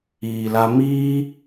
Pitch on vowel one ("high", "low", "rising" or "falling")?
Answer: low